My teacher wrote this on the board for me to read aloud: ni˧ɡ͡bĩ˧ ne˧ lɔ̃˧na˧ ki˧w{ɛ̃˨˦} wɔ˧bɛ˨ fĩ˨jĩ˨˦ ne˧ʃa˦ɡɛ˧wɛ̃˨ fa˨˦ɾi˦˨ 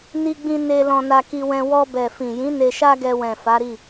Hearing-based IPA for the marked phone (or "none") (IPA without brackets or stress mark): ɛ̃˧